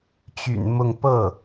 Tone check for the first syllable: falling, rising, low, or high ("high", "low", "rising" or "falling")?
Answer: low